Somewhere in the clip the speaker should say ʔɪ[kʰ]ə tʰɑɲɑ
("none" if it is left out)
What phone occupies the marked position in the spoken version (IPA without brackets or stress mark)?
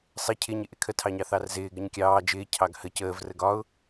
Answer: kʰ